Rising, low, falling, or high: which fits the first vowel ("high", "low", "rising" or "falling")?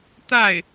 falling